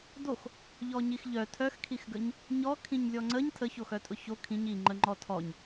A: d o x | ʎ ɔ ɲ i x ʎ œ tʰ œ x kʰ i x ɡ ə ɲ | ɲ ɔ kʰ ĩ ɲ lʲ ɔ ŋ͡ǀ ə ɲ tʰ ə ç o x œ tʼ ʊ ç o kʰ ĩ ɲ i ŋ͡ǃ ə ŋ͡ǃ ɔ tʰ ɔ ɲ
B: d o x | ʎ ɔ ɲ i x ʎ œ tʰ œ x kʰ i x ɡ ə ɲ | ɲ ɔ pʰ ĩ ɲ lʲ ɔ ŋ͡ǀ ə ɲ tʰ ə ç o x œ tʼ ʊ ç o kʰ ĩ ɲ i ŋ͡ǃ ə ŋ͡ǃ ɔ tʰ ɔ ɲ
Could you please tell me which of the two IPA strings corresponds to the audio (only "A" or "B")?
A